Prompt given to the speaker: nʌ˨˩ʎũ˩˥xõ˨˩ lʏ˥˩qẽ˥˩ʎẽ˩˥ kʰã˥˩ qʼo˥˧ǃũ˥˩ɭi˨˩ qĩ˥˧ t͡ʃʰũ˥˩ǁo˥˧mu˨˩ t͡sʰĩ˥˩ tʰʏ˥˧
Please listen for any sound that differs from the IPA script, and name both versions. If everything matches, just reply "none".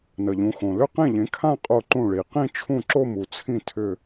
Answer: none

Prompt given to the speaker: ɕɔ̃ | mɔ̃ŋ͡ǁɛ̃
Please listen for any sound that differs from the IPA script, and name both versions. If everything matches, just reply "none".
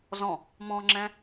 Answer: ɕ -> z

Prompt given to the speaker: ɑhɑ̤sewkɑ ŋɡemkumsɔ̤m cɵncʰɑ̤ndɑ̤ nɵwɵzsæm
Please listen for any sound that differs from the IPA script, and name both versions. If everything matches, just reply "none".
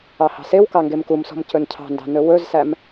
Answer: none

